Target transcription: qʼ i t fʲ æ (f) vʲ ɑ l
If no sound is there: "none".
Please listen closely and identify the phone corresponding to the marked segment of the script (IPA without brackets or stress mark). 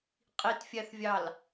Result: θ